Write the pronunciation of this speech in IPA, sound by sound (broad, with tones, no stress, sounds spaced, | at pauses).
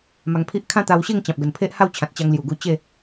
m a˧ ŋ pʰ i˦ ʔ kʰ ã˦ t̪ a˧ w ɕ e˥˧ ŋ t͡ɕ ã˨ p̚ ɡ ə˨˩ n pʰ e˦ ʔ h a˥˧ w t͡ɕʰ ã˨ t̚ t͡ɕ a˧ ŋ l j u˨˩ ɡ u˧ t͡ɕ e˥˧